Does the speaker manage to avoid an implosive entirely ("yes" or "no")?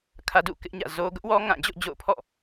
yes